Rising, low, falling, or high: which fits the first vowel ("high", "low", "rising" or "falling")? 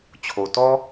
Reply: low